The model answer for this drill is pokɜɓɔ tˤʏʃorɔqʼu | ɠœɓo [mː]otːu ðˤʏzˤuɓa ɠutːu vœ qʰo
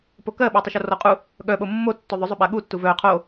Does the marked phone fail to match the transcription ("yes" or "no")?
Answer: no